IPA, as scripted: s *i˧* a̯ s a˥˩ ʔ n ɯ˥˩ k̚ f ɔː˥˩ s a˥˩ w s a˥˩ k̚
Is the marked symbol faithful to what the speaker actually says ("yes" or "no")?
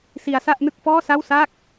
yes